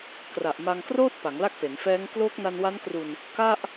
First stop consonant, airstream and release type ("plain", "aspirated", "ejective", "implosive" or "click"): plain